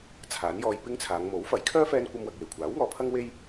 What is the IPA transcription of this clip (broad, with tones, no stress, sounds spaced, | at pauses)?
t͡sʰ aː˨˥ n j ɔː˧ j p ɪ˥ ŋ t͡sʰ aː˨˧ ŋ m o˨˥ w f ɐ˨˥ j kʰ œː˥ f ɛː˥ n kʷ ɐ˥ m w ɐ˧ k̚ j e˨˩ j kʷʰ aː˨˥ w ŋ ɔː˨˧ pʰ ɐ˥ ŋ w e˥ j